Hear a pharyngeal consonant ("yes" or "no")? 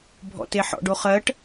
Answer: yes